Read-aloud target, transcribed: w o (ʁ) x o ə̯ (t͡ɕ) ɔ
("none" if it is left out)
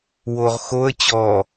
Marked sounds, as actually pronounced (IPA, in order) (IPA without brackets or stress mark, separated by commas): ʁ, t͡ɕ